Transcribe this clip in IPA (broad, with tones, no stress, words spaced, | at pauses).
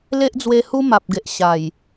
le˦ʔd͡zwe˧ hu˦ma˨p̚ɡe˨ʔ ɕa˨˩j